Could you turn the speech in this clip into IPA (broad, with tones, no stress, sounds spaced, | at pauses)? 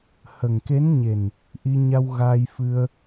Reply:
h ə˨˩ ŋ k e˧˥ n ɲ e˨˩ n | ʔ i˧ ɲ a˧ w ɣ aː˧ j f ɨ˧ ə̯